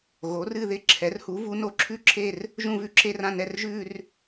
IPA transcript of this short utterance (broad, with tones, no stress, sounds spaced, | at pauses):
ɣ o˩˥ r ɨ˥˧ ð ɪ˥˧ ǁʰ ɛ˩˥ r h u˩˥ v u˩˥ n o˩˥ ǁʰ ʉ˥˧ ǁʰ e˥˧ r | ʒ ũ˥˧ v ʉ˥˧ ǁ e˥˧ r ã˥˧ n ɛ˥˧ r ʒ ʉ˥˧ r